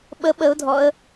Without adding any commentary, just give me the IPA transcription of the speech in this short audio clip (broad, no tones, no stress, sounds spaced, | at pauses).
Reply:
ɓ ə ɓ ə ʊ̯ dʱ ɔ ə̯